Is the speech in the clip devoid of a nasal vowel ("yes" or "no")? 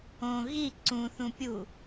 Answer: no